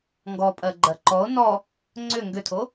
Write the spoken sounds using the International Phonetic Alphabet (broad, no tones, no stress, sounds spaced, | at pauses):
ŋ ɡ ɔ pʼ ɜ ɡ͡ǃ ɜ ǃ ɔ o̯ n ɔ | ŋ͡ǀ ʏ ŋ ɡ ʏ tʰ o